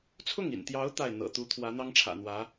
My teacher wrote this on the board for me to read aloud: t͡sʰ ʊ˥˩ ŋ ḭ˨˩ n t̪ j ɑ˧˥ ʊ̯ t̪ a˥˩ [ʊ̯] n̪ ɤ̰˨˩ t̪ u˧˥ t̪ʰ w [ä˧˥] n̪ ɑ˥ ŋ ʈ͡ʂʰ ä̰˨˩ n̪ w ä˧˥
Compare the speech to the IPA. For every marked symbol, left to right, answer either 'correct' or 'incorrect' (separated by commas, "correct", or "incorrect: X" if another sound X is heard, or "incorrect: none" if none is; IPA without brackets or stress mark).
incorrect: ɪ̯, correct